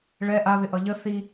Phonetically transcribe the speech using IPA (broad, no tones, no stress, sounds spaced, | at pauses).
ɭ ɛ ʔ a β ɪ ʔ ʌ ʎ ə θ i